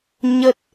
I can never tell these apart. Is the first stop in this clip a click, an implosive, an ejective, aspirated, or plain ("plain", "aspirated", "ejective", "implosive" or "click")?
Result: plain